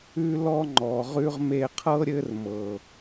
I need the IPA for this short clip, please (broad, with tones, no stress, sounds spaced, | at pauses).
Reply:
ʉ˦ l ɔ˦ ŋ͡ǃ ɔ˨ ʁ ʉ˦ ʁ m e˧ qʰ ɤ˦ ɾʲ ɘ˦ r m ɤ˨